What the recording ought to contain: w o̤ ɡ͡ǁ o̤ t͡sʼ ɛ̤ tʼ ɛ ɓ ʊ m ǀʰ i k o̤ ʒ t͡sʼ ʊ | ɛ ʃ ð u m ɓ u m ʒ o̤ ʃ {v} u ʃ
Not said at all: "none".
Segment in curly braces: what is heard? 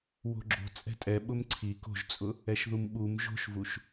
v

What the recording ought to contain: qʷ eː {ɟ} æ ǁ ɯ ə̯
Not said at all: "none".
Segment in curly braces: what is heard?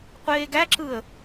ɡ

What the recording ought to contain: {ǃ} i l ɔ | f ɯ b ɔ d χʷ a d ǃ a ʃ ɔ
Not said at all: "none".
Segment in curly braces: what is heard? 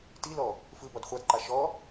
t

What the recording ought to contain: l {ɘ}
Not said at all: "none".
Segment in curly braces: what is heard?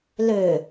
ø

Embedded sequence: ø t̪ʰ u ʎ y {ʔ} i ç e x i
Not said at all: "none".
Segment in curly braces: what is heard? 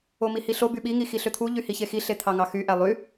h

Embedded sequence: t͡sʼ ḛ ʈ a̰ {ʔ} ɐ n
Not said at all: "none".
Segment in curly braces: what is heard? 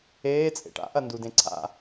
ʔ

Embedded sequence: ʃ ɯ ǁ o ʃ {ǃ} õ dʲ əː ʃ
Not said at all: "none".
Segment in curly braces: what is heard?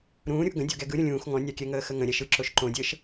ǃ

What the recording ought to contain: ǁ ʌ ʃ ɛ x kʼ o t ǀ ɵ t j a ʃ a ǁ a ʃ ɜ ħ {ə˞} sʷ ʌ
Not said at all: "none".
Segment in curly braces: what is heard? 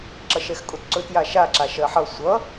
ʌ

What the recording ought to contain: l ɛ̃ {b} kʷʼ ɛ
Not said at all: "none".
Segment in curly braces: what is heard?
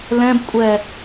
b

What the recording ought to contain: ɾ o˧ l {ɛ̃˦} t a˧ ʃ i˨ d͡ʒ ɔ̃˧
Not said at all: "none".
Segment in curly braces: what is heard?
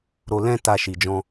ɛ̃˦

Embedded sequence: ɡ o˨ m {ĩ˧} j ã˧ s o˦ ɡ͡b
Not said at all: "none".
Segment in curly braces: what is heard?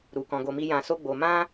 i˧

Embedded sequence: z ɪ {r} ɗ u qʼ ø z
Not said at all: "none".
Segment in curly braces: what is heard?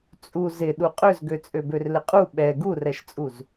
none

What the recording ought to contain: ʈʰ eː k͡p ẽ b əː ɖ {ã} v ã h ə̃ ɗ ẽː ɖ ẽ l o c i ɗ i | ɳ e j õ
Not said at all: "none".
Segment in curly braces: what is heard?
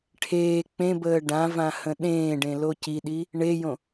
ã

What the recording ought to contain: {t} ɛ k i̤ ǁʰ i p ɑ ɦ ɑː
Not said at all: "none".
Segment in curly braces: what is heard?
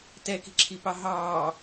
t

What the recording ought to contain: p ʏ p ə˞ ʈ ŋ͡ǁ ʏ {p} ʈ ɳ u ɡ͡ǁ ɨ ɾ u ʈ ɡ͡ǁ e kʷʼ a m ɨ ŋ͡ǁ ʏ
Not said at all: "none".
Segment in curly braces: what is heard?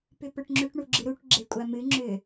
none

